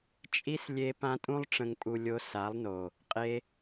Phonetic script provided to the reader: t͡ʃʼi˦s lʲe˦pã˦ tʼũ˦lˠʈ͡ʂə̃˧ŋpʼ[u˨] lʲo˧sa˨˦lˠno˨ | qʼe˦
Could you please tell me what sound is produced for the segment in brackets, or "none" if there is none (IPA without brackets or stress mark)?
u˧